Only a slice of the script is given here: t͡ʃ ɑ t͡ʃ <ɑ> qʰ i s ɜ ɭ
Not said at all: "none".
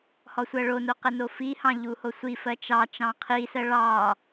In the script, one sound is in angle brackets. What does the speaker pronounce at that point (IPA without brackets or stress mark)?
ɑ̃